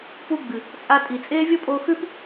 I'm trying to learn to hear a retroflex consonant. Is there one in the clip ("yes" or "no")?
no